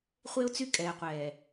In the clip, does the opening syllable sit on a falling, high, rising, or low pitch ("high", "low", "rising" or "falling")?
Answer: high